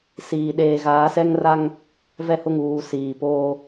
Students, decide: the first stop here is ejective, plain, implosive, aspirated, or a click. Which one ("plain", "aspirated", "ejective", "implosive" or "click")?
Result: implosive